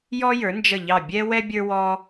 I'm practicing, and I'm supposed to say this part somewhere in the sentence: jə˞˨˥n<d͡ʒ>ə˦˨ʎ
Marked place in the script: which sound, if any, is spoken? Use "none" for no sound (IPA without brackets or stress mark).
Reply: d͡ʒ